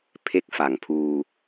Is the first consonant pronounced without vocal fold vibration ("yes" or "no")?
yes